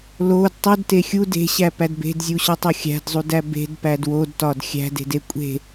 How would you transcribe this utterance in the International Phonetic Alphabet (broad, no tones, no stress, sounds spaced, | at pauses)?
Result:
l o d tˤ u d t e xʲ u d e̤ ɕ æ p æ d b e̤ d zʲ u ɕ ɒ tˤ o xʲ æ̤ d zˤ u d æ b e̤ d p æ d w o d t ɒ d xʲ æ̤ d e̤ d e kʷʼ e̤